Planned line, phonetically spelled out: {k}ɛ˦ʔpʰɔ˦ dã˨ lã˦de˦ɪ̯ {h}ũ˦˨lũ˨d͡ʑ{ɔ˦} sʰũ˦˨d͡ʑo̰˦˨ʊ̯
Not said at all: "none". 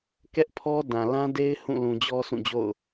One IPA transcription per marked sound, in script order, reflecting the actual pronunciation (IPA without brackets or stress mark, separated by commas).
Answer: k, h, ɔ˦